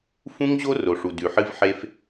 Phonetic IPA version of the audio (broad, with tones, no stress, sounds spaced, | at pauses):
f ũ˦ ŋ ʑ o˦ r o˨ ʂ u˨ d ʉ˨ ħ ɨ˧ v ħ e˧ f